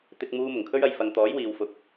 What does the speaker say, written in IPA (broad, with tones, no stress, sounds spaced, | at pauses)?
t̪ ɪ˧ k̚ m uː˧ m ʊ˨˩ ŋ kʰ ɵ˥ ɥ ɐ˧ j f ɐ˧ ŋ t̪ ɔː˨˥ j w iː˨ w f ʊ˧ k̚